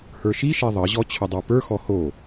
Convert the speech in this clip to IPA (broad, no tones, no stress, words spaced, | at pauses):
hə˞ʃiʃɛ ðˤʌʑɔ t͡ɕʰʊdˤə˞pə˞xɔ ho